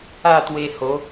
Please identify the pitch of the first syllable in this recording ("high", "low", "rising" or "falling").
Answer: falling